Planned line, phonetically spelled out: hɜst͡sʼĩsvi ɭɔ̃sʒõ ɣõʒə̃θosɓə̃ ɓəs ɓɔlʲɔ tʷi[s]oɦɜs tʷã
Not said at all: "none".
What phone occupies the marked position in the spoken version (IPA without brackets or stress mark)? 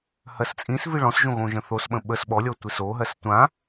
s